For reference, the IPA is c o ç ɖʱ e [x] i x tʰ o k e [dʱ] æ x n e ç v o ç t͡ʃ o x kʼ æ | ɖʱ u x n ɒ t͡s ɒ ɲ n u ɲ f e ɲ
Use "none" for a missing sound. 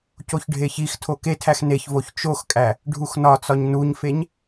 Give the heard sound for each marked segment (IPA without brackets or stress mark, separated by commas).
ç, tʰ